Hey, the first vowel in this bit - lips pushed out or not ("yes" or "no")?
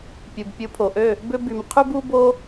yes